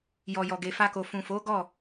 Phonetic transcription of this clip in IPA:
j ɔ˨ j ɔ˨ ɡ e˨ f a˧ k o˨ f ũ˨ f o˨˦ ɡ ɔ˦˨

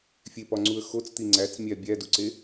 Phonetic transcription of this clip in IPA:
fʲ e p ɒ ŋ͡ǀ u ə̯ x o t͡s t̪ i ŋ͡ǀ æ t͡s mʲ æ bʲ æ d u ǀ e

